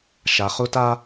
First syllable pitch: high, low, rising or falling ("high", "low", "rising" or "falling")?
high